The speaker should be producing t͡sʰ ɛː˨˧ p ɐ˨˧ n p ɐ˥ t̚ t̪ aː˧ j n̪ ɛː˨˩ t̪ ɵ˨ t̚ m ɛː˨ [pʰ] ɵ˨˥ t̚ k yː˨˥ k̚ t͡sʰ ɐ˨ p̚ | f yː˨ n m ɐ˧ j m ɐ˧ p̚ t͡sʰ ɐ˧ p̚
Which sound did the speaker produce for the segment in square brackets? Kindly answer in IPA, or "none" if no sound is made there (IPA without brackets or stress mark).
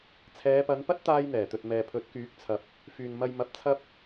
pʰ